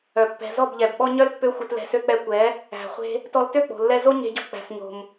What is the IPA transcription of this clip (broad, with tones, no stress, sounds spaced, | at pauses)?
œ˨ pː ɛ̤˨ z ɔ˦˨ b ʎ ɛ˨ b ɓ ɔ˦ ɲ œ˦ l pː ø˦ xʷ ɛ˧ t l ɛ̤˧ s ø˦ k͡p ɛ˧ kʷ ɛ˨˦ | æ̤˨ χʷ e̤˧ | t ɔ˧ l t ø˦˨ k͡p o̤˨ lː ɛ˧ z o˦ ɲ e̤˧ ɟ ɔ̤˧ k͡p æ̤˨ s ɲ o̤˨ m